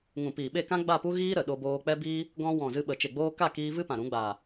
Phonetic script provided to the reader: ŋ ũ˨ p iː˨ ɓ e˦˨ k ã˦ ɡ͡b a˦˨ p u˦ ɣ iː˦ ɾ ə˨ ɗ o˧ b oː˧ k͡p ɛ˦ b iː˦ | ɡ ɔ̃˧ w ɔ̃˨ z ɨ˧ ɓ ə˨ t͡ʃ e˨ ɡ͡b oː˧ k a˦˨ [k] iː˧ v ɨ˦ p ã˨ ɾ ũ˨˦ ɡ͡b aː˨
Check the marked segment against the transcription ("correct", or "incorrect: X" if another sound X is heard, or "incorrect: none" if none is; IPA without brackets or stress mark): correct